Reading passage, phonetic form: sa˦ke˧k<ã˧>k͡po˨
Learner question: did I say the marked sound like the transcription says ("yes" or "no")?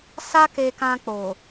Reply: yes